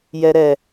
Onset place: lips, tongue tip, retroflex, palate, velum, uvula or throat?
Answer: palate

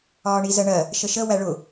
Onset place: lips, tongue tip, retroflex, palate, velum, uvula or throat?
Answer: retroflex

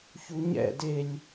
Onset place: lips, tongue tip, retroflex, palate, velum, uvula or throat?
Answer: palate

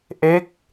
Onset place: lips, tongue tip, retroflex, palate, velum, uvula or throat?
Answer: throat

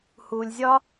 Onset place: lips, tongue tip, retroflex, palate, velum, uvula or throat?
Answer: throat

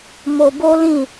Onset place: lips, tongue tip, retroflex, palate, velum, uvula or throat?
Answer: lips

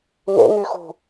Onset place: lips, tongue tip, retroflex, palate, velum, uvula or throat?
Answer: velum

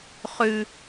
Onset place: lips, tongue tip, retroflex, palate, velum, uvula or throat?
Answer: uvula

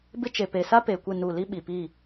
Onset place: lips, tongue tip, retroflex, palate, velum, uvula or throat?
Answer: lips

